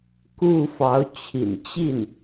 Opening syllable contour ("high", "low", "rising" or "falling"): falling